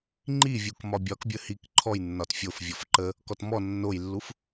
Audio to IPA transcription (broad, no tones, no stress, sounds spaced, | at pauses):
ŋ͡ǃ i vʲ u k m ɒ bʲ ɒ k bʲ ə h i k ǃʰ ɔ j nː ɒ t fʲ o f vʲ ɔ f ǃ ə | k ɔ t m ɔ nː o j lː u f